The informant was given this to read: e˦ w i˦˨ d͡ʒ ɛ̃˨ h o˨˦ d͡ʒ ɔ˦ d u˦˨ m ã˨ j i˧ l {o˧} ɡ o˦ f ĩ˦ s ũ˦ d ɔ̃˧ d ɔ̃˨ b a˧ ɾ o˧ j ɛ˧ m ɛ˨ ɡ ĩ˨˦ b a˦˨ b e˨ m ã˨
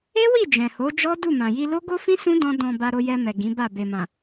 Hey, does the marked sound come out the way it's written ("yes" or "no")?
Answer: no